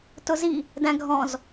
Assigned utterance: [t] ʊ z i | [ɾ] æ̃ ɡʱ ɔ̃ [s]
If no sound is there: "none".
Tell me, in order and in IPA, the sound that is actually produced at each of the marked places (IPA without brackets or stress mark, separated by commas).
t, d, z